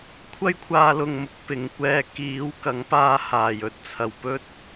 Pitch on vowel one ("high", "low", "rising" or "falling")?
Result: high